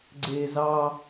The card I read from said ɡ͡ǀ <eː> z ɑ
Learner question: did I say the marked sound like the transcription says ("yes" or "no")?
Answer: yes